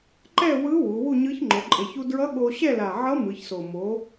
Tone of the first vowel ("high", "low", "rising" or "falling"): falling